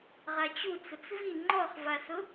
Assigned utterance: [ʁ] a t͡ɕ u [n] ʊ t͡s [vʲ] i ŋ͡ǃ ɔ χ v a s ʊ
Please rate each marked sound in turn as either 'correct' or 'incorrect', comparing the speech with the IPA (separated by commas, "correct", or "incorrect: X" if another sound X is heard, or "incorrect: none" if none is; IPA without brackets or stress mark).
correct, incorrect: t͡s, incorrect: v